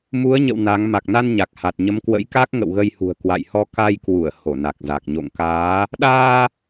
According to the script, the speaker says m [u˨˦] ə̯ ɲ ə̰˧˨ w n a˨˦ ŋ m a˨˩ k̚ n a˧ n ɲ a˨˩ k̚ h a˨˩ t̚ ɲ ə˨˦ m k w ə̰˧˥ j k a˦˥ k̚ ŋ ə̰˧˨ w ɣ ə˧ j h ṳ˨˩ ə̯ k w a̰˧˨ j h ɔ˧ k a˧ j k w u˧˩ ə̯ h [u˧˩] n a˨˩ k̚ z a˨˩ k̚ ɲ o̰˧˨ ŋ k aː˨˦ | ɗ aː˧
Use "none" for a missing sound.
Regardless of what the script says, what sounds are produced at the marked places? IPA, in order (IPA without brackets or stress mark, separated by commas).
u˨˦, o˧˩